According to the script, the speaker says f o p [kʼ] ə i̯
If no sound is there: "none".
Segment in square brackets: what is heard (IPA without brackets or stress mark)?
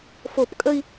kʼ